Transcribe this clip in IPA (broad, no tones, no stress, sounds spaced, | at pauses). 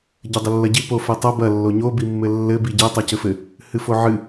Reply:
ɟ ɘ dˤ ɘ lː ɐ ɟ i p o f ɛ tˤ ɐ b ɐ lː o ɲ o b i mː ɘ lː ɘ b i ɟ ɛ tˤ ɛ c ɘ f ɘ | h ɨ f o ʕ ɨ